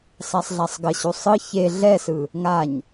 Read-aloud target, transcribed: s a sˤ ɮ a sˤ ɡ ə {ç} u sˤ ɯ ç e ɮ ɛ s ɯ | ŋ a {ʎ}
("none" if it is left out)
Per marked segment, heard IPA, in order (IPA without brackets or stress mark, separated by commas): ɕ, ɲ